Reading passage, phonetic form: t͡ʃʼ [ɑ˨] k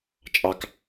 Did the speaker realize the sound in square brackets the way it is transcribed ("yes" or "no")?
yes